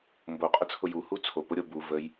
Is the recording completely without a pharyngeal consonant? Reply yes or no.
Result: yes